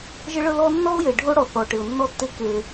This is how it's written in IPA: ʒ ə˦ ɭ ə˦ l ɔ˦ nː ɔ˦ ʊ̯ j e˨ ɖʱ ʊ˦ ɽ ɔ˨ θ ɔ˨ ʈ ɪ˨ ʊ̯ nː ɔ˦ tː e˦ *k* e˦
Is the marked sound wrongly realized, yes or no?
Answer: no